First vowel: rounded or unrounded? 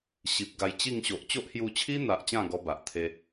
unrounded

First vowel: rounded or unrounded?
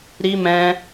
unrounded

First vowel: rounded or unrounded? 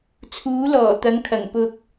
rounded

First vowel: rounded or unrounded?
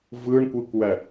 unrounded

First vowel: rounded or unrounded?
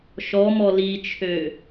rounded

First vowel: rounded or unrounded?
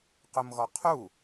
rounded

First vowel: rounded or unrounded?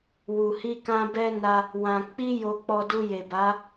rounded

